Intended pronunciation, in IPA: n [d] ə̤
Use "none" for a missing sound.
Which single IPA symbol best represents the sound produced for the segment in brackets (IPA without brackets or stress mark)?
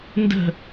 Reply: d